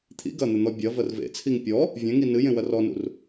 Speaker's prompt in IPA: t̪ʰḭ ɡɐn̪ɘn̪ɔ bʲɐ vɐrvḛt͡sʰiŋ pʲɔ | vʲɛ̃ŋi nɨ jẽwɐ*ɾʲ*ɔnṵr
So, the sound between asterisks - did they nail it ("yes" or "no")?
no